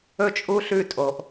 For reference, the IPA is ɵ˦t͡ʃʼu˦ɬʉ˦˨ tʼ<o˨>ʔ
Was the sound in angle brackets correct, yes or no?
yes